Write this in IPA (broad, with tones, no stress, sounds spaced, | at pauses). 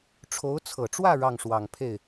ʈ͡ʂʰ o˧˥ ʊ̯ t͡sʰ ɤ˨˩ ʈ͡ʂ w ä˥˧ ɻ ɑ˥˩ ŋ ʂ w ɑ˨˩ ŋ pʰ e˥˩ ɪ̯